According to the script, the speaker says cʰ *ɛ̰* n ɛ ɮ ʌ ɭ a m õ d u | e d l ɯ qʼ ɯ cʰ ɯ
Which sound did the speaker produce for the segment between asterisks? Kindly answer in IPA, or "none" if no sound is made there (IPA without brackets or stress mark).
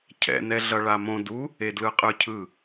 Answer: ɛ̰